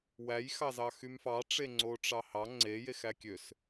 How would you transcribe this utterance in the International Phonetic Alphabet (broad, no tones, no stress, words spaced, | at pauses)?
wæjxɑzɑxym fɑʈ͡ʂe ŋ͡ǀoʈ͡ʂɑhɑ ŋ͡ǀejex ækʲøs